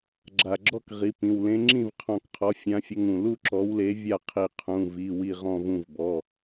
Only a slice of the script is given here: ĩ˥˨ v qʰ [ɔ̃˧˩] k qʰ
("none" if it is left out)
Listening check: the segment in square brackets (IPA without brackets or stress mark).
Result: ɔ̃˧˩